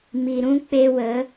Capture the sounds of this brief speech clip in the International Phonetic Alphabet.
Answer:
m i˨ ɾ ũ˦ k͡p e˧ w ə˨˦

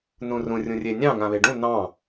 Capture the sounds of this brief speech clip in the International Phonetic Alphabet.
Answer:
n ũ r ũ rʲ ũ rʲ e nʲ ɑ̃ ŋ ã β e ɖ ũ n ɑ̃

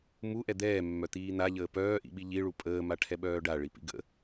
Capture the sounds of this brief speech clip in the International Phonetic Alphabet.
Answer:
m u ʔ ɛ d̪ ɛː mː œ t̪ iː n̪ a ʎ əː p œː ʔ ḭ ɓ i ʎ i ɭ u pʼ əː m a ʈʰ ɛ ɓ œː ɖ a ɭ i p ḭ ɡ ə̰

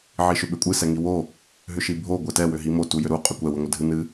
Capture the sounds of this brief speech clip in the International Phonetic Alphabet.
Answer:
ʕ i ʃ ʏ ɓ ʏ kʷʼ ɨ s ɛ ŋ i w o | ɦ ʏ ʃ i bʱ o ɡʷ ɛ t ɛ w ʏ ɦ i m o t u j ʏ ɾ u qʼ ʏ kʷ ɛ w ɨ ŋʷ ə dʱ ɨ n ɨ

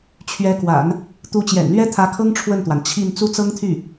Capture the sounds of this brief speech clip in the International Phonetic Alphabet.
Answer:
t͡ɕʰ ɥ ɛ˧˥ k w a̰˨˩˦ n | t̪ u˧˥ t͡ɕ j ɛ̰˨˩ n l ɥ ɛ˥ t̪ʰ ä˧˥ kʰ ɤ˥ ŋ ʈ͡ʂʰ w ə˥˩ n t̪ w a˩ n t͡ɕʰ i˥˧ n t͡s u˥˩ t͡s ɤ˥ ŋ t̪ʰ y˥˩

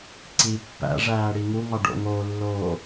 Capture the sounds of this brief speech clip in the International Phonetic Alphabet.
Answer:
ǀ i pː æ̰ ʐ æː ɽ i ŋ u ŋ ɒ ɖ o̰ ŋ oː lː oː

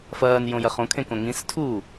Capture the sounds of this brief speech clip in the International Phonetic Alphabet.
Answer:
f ɐː n j õ j ɐ χ õ kʰ ẽ k õ ŋ ĩ s tʰ uː

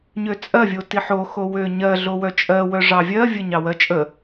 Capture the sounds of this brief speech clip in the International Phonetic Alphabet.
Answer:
ɲ ø t͡sʼ ɜ vʲ o t i ħ o x o w ø ɲ ɜ ɮ o w œ t͡ʃʼ ɜ w œ ʐ ɑ vʲ ɜ vʲ ə ɲ ɑ w ɜ t͡ʃʼ ə

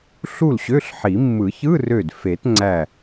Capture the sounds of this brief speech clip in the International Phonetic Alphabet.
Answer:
ɬ u˥˩ l ɕ ø˧˥˧ ɬ ħ i˨˩˦ mː ɯ˨˩˦ ç ɯ˧˥˧ r ø˧˩ d f e˨˩˦ t ŋ͡ǀ æ˧˩

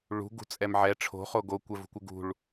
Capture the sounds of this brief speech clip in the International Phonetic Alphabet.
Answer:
ɭ ṳ ɡ ṳ t͡sʼ ɛ m ʕ ɛ ʈ͡ʂʰ o̤ χ o ɡ o kʷ ɛ v ṳ kʷ ɪ ɡ ṳ ɭ

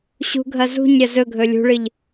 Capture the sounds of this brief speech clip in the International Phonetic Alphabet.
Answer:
ɕ ṳ ɡʱ ɐ z ṳ ɲ ɾʲ ɐ z ɵ ɡʱ ɵ lʲ ṳ ɭ ɨ ʎ

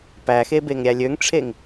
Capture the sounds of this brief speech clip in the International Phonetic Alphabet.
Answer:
p æ x e b e ŋ ɾʲ æ lʲ ø ŋ ʈ͡ʂʰ e ŋ

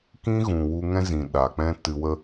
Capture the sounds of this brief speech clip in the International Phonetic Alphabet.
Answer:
k ĩ˧ ɣ ũ˨ w u˧ ŋ ɛ̃˧ z ĩ˨ ɗ a˨ k͡p ɛ̃˧ t ɨ˧ w ə˦

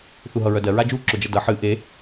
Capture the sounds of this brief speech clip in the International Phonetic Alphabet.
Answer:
θ u ɦ ʌ ɹ œ d ɜ ɹ a d͡ʒ u ǁ œ d͡ʒ ʌ d ʌ ħ ɨ ʔ e

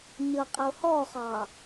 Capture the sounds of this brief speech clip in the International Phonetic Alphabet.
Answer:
ɲ ʌ qʼ ə o̯ h ɔ χ ɑ

